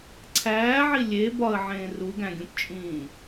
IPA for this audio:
ǀʰ æː ʕ i lʲ e b ɒ ə̯ ʕ ẽː r u ɡ æ̃ ɡʲ ũ p t͡ʃʼ ĩː

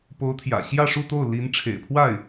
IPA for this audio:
p o˧˥ ʊ̯ t̪ʰ j ä̰˨˩ ɕ j ä˥˧ ʂ u˥˧ t̪ o˥˩ ʊ̯ l i˧˥ n ʈ͡ʂʰ ḛ˨˩ ɪ̯ pʰ w a˥˩ ɪ̯

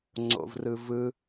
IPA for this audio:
ŋ͡ǀ o̰ v r ɯ v ɯ

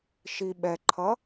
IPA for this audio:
ʃ i ɓ ɛ ǃʰ ʌ

